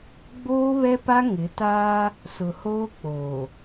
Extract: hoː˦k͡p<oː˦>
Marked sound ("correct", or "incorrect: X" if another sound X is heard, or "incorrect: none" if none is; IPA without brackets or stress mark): incorrect: oː˨